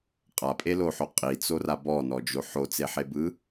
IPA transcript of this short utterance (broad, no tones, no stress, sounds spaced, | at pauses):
qʼ a pʼ e l o ħ o qʼ i t͡s o r a b ɔ n ɔ d͡ʒ o ħ o t͡s e ħ e b ɯ